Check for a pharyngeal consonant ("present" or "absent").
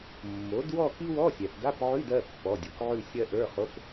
present